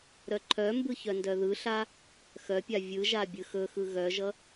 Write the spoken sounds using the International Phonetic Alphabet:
ɾ œ ǃʰ œ m b ɯ ç œ n d œ ð ɯ ɬ a | x œ pʲ a vʲ ɯ ʒ a bʲ ɯ x ɵ x ɯ ɣ œ ʒ ʌ

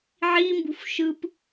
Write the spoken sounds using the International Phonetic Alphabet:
ʕ i m b ṳ f ʃ ɯ p

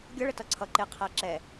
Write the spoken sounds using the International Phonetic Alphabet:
ɡʲ ʌ ɭ ə t ʌ ǀʰ ʌ ǃ ɪ qʰ æ ǁ ɛ

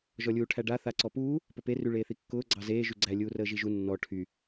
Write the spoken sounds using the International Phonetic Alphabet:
ʒ ɔ lʲ uː ʈʰ æ ɖ a θ a ǀ ɔ p uː | p ə p e r y ɭ eː θ i kː ʊː ɡ͡ǀ ɑ z eː ʒ y ɡ͡ǀ æ lʲ uː r əː ʒ i ʒ u nː ɔ ʈʰ y

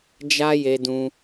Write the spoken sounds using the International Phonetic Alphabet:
d͡ʒ a˦ j e˧ d ũ˧

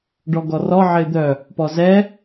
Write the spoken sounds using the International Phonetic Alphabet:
ɖ ɔ ɡ ɔ r ɔ ʕ ɪː d̪ œ | p ɔ z ɛ

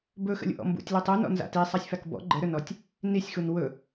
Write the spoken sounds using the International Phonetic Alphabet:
b ɵ x ə̰ lʲ ṵ ʔ ɔ̰ m b ṵ tʲ l u tˤ u n ɔ̰ n z a̰ t i sˤ a sʲ f a k b ɔ̰ ɡ͡ǃ ə ɾ ɵ n ɔ tʲ | n i sʲ x u n w ɵ

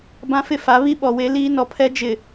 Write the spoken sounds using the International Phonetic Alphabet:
b ã˦ f ɪ˦ f a˨˦ β i˦ ɓ ɔ˨ w e˦ l iː˦ n ɔ˨ pʰ ɛ˦ d͡ʒ ɪ˨

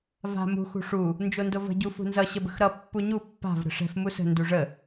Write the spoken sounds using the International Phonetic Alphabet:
v a̤ m ṳ x ṳ ʂ u | n d͡ʒ o n d o v ə̤ ɟ u f ṳ n z ʌ ɕ ə b ə̤ x ɾ ʌ pː u ɲ u pː a̤ v ɾ ə̤ ʂ ɛ̤ f m u s ə̤ n d u ʐ ə

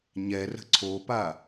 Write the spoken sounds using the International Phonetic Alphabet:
ɲ ɛ r ə̤ ǀʰ o p a

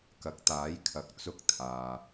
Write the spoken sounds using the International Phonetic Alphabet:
k ɐ˨˥ k̚ t̪ aː˨˥ j kʰ ɐ˨˥ k̚ t͡s ʊ˥ k̚ t̪ʰ aː˨

